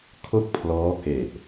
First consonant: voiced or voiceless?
voiceless